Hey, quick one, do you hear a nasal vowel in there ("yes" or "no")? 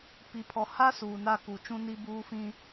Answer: yes